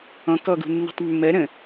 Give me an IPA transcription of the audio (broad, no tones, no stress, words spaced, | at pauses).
ɔ̃ kɔɡṳnːṳtˤ mːɜ ɾə̃